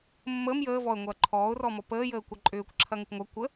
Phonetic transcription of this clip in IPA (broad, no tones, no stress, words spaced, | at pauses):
mːəːm jəː vɔə̯ ŋʷɐːǃʰɔːʊ̯rɔ mɔpəːjəː kʷɐǃʼʏːkʷ ǁʰɐŋəkʷŋʷɐ kʷə